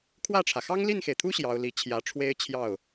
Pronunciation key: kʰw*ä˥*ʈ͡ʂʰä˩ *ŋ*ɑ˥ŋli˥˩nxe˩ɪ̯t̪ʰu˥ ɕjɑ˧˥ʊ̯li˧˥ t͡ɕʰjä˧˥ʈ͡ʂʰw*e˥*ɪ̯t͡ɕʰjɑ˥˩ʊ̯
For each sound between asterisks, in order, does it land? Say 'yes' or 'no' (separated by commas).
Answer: no, no, yes